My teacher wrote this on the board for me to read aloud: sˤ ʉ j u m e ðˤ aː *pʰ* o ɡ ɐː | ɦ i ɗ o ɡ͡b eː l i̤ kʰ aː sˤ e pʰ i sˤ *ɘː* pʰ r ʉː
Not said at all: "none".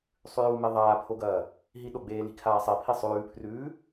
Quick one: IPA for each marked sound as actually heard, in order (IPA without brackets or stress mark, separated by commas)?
pʰ, ʉː